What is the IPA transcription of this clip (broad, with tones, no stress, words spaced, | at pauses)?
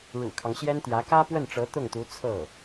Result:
ɻṵ˨˩kʰɑ˦ŋɕjɛ˥nt̪jä˧˥ kä˥pwə˥˩nʈ͡ʂɤ˧˥ t̪ʊ˥˩ŋt̪u˧˥ t͡sʰɤ˥˩